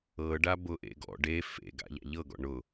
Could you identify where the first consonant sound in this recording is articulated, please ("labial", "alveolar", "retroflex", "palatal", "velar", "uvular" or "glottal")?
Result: retroflex